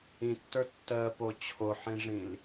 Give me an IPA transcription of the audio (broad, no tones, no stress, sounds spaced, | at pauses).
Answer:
ĩ tː ə˞ tː ɜ p o t͡ɕʰ o ħ ĩ ʐ ĩ l